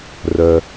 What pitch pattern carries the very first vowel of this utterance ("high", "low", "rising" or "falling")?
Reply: low